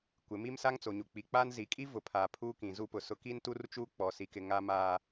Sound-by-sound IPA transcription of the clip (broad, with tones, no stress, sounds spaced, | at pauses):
kʷ ɪ˨˦ m i˦ m s a˦ ŋ t͡s o˨ ɲ u˨ k͡p i˨ k͡p aː˦ n z i˨ kʼ i˦ v ʊ˨ pʰ aː˨ pʰ uː˦ k ĩ˨ z u˦ p ʊ˨ s ʊ˦ k i˦ n t u˦ r t͡ʃ uː˦ k͡p ɔ˨ s i˨ k ɪ˨ ŋ a˦ m aː˦